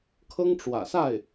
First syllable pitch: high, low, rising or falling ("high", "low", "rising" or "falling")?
high